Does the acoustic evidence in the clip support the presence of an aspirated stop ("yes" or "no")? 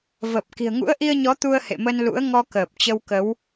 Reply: no